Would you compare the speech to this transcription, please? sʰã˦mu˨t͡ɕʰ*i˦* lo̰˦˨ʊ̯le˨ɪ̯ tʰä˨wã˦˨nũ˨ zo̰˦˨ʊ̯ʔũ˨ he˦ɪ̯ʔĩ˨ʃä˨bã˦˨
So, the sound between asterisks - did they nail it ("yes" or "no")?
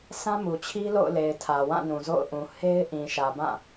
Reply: yes